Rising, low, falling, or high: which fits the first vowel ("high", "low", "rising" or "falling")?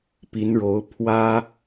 rising